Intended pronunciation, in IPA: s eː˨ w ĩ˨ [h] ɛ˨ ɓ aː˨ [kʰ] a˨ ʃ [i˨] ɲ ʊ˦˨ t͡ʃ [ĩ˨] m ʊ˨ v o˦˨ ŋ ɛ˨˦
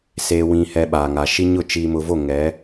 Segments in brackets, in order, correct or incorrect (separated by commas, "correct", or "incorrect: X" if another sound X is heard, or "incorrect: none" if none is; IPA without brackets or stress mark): correct, incorrect: ŋ, incorrect: i˦, incorrect: i˨